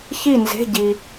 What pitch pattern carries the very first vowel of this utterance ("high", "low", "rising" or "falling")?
falling